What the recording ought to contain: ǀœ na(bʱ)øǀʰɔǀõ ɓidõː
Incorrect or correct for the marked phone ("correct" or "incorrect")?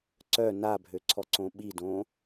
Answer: correct